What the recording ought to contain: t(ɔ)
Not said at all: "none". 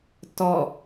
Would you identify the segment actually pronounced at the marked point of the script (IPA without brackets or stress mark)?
ɔ